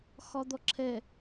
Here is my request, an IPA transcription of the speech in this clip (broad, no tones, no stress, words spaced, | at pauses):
xɒd̪ɔǁʰɛ